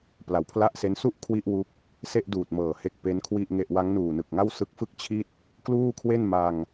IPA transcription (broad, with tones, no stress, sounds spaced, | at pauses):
p l a˨˩ w pʰ l a˥˩ ʔ s e˦˥ n s u˥˩ ʔ kʰ w i˥˩ ʔ w u˦˥ k̚ | s e˥˩ ʔ d uː˨˩ t̚ m ɤː˨˩ h e˥˩ k̚ p e˦˥ n kʰ w i˥˩ ʔ ŋ e˥˩ ʔ w a˦˥ ŋ n uː˨˩ n ɯ˨˩ k̚ ŋ a˥˩ w s ɯ˦˥ k̚ f ɯ˥˩ k̚ t͡ɕʰ i˥˩ t̚ | k l uː˥˩ kʰ w e˥˩ n m a˧ ŋ